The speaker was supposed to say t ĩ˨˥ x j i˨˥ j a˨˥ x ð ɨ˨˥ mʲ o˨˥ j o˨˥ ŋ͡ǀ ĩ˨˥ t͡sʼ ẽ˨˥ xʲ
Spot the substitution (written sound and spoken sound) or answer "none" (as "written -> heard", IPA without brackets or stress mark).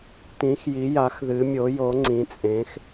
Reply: xʲ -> x